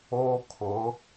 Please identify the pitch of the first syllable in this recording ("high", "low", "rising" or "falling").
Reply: high